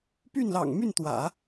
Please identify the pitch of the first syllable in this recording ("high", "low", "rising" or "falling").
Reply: falling